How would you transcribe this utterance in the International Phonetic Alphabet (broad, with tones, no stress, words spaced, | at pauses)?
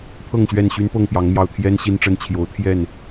pʰɤ˥˨ŋɕɥɛ˥˨nɕy˦n pɤ˥˨ŋpjɑ˨˦ŋmjɑ˨˩ʊ̯ t̪ʰjɛ˦n ɕi˦nʈ͡ʂə˦n t͡ɕʰjo˨˦ʊ̯t̪ʰjɛ˥˨n